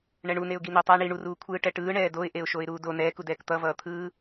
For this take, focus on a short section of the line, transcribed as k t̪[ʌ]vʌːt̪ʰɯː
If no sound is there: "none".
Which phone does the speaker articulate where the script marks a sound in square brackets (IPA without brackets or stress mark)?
ʌ